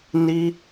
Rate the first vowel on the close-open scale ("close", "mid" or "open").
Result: close